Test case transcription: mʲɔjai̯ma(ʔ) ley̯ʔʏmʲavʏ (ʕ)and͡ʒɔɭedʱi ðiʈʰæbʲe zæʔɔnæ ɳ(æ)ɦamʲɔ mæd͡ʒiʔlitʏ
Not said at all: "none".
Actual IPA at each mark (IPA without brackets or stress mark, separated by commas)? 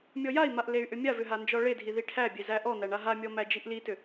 ʔ, ɦ, a